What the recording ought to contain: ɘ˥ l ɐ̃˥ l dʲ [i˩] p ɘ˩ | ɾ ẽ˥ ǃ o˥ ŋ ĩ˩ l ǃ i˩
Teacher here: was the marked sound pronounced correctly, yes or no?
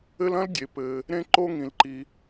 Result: no